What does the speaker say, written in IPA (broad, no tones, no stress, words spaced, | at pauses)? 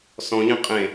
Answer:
sɔ̃ʎẽ qʼẽ